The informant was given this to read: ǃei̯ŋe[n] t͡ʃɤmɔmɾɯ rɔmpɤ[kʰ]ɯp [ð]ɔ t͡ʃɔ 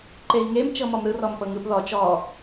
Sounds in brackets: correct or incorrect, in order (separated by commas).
incorrect, incorrect, correct